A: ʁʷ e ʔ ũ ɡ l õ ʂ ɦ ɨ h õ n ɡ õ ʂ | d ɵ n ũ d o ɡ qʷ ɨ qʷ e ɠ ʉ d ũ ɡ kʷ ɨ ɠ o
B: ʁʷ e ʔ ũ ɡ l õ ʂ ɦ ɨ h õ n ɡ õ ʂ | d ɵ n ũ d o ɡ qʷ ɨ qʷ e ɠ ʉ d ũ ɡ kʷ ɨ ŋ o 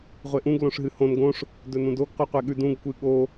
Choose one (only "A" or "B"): A